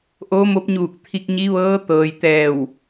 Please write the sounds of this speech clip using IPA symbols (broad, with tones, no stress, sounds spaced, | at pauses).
ʔ oː˧˥ m o˧˥ p̚ ɲ uː˧˩ k̚ t̪ʰ i˧ k̚ ɲ i˧˥ ʋ ɤː˧˥ t̪ ɤː˩ j t̪ ɛː˧˩ w